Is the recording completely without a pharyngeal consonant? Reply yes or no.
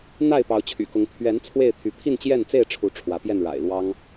yes